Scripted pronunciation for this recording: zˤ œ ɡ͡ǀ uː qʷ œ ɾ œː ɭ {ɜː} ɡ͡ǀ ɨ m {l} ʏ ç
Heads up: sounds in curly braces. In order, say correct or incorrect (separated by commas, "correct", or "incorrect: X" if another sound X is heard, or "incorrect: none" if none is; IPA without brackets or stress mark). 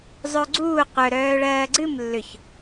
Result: correct, incorrect: lː